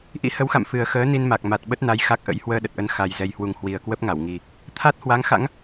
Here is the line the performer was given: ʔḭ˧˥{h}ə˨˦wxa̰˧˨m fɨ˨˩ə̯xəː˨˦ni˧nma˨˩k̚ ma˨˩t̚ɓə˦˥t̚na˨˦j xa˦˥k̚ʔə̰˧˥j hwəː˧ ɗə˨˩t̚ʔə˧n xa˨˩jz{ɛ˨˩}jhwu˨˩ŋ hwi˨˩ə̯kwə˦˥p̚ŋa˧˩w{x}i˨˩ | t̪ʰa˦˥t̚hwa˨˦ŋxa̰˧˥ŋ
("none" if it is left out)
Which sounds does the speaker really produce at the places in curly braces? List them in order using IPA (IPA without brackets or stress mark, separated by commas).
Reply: h, ɛ˨˩, ŋ